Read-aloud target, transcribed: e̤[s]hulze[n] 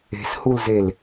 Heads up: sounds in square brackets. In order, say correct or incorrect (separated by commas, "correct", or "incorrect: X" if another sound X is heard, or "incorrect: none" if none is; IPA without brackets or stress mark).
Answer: correct, incorrect: l